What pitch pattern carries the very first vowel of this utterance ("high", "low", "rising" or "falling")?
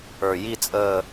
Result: low